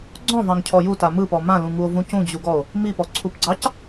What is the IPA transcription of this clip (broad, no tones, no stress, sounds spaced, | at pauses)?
ɡ͡ǀ ɔ̃ v ɑ̃ ŋ cʰ ɔ j u t a m ɯ p ɔ m ã l ũ ŋ u o̯ v ũ c ũ d͡ʑ u ɡ ɔ o̯ | m i p ɔ ǀʰ u p ɡ͡ǀ ɑ c